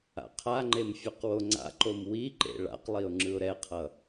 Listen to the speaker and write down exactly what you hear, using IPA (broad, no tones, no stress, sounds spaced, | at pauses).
a̰ qʰ a ŋ͡ǃ e m fʲ ʌ q w o ŋ͡ǀ a̰ ǃ o m w i ǃ ḛ ɭ a̰ q lˠ i ʊ̯ ŋ͡ǁ ɯ ʊ̯ ɾ ɛ qʰ ʌ